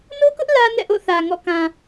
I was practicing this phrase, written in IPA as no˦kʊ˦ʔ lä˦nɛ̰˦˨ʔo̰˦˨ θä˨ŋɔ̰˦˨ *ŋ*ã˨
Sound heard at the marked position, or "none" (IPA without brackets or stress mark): k